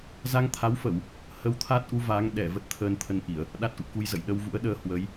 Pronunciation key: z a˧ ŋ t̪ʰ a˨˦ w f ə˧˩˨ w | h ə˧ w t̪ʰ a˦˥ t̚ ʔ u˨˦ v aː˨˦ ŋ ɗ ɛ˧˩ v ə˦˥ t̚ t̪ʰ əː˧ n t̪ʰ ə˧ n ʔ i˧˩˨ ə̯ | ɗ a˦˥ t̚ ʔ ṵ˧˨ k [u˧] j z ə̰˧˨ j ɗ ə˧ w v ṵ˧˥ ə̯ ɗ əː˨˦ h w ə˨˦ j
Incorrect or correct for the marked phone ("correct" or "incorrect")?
correct